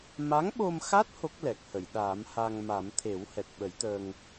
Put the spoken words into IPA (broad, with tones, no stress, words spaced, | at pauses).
ma˧˥ŋɓo˧mxa˦˥t̚ ho˦˥k̚lɛ˨˩k̚hə˨˩˨j ɗaː˨˩˦mha˧ŋma˨˩˦m t̪ʰe˨˩˦whɛ˨˩t̚ɓə˨˩˦jt̪əː˧ŋ